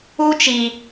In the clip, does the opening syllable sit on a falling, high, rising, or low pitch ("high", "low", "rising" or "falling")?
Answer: high